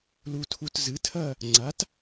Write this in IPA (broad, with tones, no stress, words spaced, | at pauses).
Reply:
lu˨tʰu˨t zɨ˩˥ tʰɐ˥˨ | ŋ͡ǀa˩˥t